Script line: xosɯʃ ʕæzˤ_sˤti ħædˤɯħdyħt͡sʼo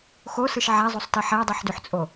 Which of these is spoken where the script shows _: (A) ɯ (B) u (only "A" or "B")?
B